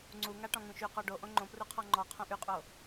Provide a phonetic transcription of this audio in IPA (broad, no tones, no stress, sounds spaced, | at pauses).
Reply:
ŋ͡ǀ u ŋ a ʈ ɔ̃ ŋ ũ ʃ y q ɔ ɖ o ʔ õ ŋ͡ǃ õ p r u qʰ ɔ ŋ͡ǃ ɔ qʰ õ ʔ y qʼ o